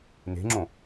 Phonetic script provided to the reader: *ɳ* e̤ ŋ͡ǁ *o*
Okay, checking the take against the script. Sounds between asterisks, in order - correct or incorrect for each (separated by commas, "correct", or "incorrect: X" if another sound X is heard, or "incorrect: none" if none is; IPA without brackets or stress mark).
incorrect: n, incorrect: õ